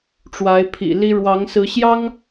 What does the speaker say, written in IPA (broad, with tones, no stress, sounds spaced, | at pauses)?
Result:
ʈ͡ʂ w a˨˦ ɪ̯ pʰ ḭ˨˩ l i˦ ɻ w ɑ˨˦ ŋ s ɹ̩˨˦ ɕ j ɑ˦ ŋ